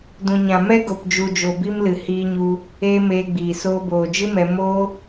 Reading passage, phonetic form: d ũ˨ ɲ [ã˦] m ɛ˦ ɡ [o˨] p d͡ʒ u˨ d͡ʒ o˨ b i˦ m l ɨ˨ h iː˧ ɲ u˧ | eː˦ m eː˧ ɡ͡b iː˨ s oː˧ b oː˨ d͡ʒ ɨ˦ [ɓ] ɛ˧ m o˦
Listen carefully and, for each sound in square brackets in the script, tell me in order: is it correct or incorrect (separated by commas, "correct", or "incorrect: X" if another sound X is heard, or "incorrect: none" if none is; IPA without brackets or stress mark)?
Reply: incorrect: ã˨, correct, incorrect: m